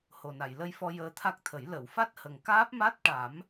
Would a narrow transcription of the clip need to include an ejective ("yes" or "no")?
no